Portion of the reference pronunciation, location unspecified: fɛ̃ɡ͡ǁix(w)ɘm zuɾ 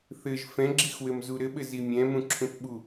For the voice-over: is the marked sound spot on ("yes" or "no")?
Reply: yes